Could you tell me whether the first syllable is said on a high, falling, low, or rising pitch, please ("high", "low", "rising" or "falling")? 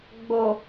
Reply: low